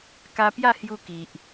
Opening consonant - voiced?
no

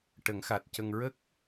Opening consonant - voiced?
no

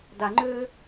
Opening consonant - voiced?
yes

